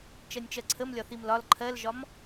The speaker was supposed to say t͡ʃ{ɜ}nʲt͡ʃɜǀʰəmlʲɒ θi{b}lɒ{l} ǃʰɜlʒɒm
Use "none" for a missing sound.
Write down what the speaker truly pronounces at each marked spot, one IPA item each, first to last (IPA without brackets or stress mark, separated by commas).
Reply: ɜ, m, l